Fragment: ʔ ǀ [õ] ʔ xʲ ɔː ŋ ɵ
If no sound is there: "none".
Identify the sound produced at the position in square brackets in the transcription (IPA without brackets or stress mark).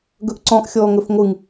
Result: ɔ̃